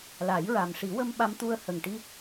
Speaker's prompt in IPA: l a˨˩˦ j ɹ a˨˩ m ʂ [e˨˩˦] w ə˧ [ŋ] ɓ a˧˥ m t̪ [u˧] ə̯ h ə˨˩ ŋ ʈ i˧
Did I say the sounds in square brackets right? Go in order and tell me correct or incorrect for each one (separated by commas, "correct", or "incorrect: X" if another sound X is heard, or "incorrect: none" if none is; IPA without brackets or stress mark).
incorrect: i˨˩˦, incorrect: m, correct